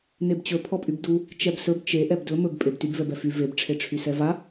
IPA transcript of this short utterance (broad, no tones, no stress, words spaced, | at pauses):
nebt͡ɕɵ pʰɔpʼybdu | t͡ʃɛbsɵb t͡ʃe ʔɛbdɵ mɵb pʼebtyb vɛbɛfy veb ʈ͡ʂʰeʈ͡ʂʰysɛva